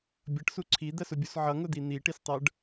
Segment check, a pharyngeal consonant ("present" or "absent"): present